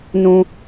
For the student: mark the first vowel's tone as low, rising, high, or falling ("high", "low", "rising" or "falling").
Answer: high